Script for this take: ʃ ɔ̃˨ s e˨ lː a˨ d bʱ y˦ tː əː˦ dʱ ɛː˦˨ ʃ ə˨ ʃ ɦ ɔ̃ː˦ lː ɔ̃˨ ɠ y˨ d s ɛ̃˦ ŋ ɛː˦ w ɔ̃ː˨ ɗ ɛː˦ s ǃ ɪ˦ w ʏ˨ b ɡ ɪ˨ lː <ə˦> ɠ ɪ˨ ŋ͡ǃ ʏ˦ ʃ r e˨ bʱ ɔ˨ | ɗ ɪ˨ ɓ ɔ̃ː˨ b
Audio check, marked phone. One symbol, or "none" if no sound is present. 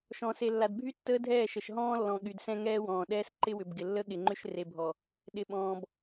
ə˦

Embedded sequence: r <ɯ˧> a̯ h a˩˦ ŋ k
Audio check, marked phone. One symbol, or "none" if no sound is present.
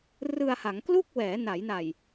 ɯ˧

